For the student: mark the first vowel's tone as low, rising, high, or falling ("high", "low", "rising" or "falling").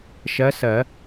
rising